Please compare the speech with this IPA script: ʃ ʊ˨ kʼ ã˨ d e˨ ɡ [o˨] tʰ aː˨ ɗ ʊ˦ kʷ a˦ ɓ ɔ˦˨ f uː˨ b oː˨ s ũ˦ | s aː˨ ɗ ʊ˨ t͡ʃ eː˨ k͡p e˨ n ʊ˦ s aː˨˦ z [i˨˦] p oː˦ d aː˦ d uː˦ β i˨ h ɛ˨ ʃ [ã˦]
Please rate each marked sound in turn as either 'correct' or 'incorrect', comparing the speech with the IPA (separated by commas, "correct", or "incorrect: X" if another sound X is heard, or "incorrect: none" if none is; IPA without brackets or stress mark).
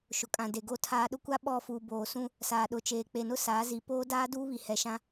correct, correct, correct